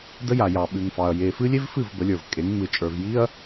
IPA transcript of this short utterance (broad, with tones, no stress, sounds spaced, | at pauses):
d ə˦ j a˨ j ɑ˨ ɓ ʉ˨ ŋ f ɑ˨ ɐ̯ j e˨ f ɨ˦ lʲ e˦ v f ɨ˦˨ v b ə˨˦ lʲ ə˞˨ v kʼ e˨˦ ŋ ŋ͡m ɨ˨ t͡ʃʼ ə˞˨ v j i˦ ɐ̯